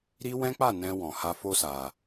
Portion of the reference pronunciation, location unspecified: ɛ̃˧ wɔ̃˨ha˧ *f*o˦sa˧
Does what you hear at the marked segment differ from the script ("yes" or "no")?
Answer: no